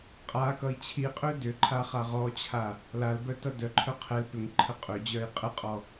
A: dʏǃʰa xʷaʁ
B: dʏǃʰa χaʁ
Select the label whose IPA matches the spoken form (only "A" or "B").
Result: B